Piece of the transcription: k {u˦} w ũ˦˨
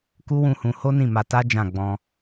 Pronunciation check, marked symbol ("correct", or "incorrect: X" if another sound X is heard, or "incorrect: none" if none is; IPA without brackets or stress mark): correct